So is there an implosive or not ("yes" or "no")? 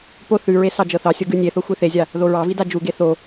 no